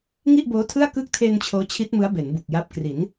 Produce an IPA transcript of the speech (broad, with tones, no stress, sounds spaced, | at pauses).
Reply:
ŋ i˥˩ ʔ b oː˦˥ tʰ ɯ˥˩ a̯ k ɯ˦˥ k̚ tʰ e˧ n t͡ɕʰ oː˦˥ t͡ɕʰ i˦˥ t̚ m ɯ˦˥ a̯ b e˩˦ n b u˨˩ k̚ j a˦˥ p̚ k r i˩˦ n